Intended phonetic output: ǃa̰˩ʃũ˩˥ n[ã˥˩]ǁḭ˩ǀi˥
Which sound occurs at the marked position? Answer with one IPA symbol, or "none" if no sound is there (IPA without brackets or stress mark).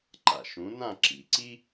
ã˥˩